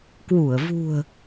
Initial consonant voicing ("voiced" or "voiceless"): voiceless